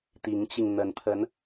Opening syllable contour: rising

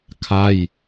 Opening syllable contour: falling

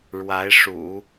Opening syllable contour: rising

